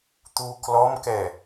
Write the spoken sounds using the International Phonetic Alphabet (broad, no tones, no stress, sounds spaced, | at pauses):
t̪ u k l ɔ m k ɛ